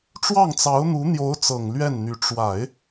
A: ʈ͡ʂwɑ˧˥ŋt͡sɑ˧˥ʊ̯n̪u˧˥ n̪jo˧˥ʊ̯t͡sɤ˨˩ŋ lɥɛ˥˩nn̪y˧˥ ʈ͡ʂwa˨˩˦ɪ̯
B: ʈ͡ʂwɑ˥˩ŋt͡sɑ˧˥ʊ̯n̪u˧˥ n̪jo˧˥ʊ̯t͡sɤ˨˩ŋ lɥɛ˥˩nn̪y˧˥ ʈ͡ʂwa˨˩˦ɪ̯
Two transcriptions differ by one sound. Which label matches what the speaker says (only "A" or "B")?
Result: B